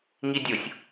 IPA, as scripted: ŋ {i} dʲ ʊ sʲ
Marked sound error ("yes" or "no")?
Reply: no